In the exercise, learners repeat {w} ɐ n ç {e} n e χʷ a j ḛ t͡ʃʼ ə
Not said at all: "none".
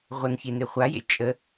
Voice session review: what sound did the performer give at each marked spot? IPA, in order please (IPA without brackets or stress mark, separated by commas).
ʁʷ, e